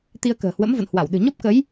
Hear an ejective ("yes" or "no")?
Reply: no